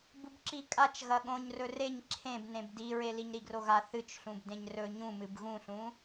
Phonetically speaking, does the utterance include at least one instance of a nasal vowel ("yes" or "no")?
yes